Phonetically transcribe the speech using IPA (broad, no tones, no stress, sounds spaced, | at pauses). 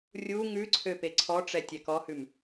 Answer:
rʲ u ŋ ʉ ǀʰ ø p e ǀʰ ɔ ʈ͡ʂ ɛ tʲ ɛ k ɔ h ʉ m